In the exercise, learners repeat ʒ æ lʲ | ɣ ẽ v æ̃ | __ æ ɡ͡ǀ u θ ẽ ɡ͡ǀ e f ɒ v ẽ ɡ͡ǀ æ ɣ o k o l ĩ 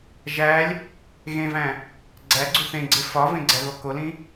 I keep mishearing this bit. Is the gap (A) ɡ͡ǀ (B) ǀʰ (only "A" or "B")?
A